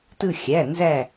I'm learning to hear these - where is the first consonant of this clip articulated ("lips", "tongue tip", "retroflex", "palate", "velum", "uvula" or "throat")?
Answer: tongue tip